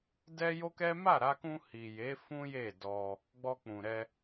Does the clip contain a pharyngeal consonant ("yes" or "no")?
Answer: no